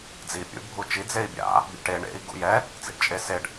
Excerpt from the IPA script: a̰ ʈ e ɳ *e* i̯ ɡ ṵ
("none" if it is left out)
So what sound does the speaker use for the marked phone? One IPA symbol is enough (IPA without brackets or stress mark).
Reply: ḛ